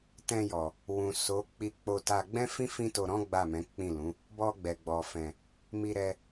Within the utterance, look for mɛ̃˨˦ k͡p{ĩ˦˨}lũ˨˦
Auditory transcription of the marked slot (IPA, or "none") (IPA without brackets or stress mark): ĩ˦˨